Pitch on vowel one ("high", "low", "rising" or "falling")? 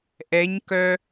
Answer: rising